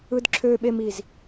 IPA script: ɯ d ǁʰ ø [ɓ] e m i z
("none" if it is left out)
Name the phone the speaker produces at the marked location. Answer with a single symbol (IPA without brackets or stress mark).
ɓ